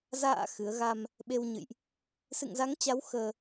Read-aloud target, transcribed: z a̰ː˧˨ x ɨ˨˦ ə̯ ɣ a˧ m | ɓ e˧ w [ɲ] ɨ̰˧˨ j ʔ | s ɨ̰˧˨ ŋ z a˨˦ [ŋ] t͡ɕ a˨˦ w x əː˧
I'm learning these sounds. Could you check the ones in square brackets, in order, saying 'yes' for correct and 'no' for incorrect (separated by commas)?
yes, yes